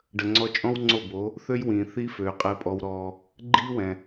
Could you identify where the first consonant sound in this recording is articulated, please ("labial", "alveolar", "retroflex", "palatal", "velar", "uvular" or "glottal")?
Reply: retroflex